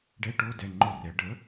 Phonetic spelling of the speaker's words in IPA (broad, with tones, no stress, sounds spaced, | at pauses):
ɖ ɛ˧˥˧ ʈ o˧˥˧ d ɛ˩˧˩ ŋ͡ǃ o˥˨ r ɛ˩˥ ɖ ə˩˥